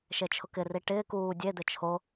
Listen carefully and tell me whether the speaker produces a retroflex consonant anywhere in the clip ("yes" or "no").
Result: yes